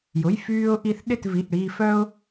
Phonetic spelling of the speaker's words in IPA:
jʊ˩˧˩jfyː˧ʊ̯ʔi˧θ ɗɪ˥˨tvi˩˧˩ʔɽiː˧fœ˥ʊ̯

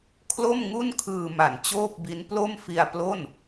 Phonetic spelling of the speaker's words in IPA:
kʰlo˥˩mŋu˥˩nkʰɯː˧ma˨˩n t͡ɕoː˥˩p̚bi˦˥n plo˥˩mfi˧a̯ plo˥˩n

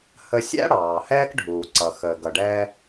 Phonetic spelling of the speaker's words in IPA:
hə˧sʲæ̰˥ ɽɑː˩hɛː˥kɖʱuː˩ǀʌ˩ xəː˩ɡʌ˩ɖɛː˧

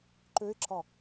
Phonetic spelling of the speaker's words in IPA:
ǃøɪ̯ǁɒ

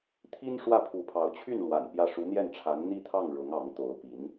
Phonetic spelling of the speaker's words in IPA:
t̪ʰi˥n ʂwä˥˩pʰu˧˥pʰɑ˧˥ʊ̯ t͡ɕʰy˥˩n lwa̰˨˩n pjä˥˩ ʂu˧˥n̪jɛ˥˩nʈ͡ʂʰa˧˥n n̪i˥˧t̪ʰɑ˥˩ŋ ɻʊ˧˥ŋɑ˧˥ŋt̪o˧˥ʊ̯pi˧˥n

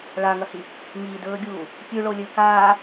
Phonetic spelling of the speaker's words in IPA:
ɭaŋɐhi | ŋidɵːɡʲuː | kʲʉɭolʲɵːk aː

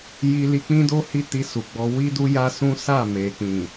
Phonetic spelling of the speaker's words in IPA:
ji˧li˧k͡pĩ˦do˦ hi˦ti˧su˨ɡ͡bɔ˧ wi˦du˦ja˦sũ˦ sa˦˨me˨k͡pĩ˨

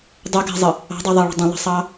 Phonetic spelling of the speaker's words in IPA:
dˤʏɡɛ̤zˤə | ɑ̤dˤɛðˤɑɭə̤ dˤə̃lˠə̤sˤɑ

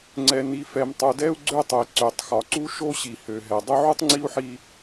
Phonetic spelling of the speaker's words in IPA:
ŋ͡ǀɛ˨ni˨fɛ˨m tˤu˨dɛ˦u̯ɡ͡ǀø˦tˤo˨i̯ ǀø˨tˤxɒ˨ǀu˦ ʃo˦ɕi˨hø˨ɦɛ˨ dˤø˦ʕu˦tˤŋ͡ǀi˦u̯ħi˦

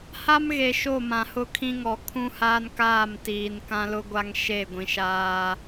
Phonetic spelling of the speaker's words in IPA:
ha˦mɣe˨ ʃo˦˨ mã˨hʊ˦kʰĩ˦ŋɔ˨ kʰũ˦haː˦nkaː˦˨mtiː˨n kã˦lʊ˦ɡʷa˦ŋ ʃe˦˨ɡʷĩ˨ʃaː˦

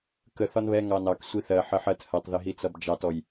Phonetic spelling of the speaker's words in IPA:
kə θɒnβɛ ŋɑnɑk sʷiθɜ ħəħɜt hɜtˤðɪɦi t͡sʌbd͡ʒɑtɔj

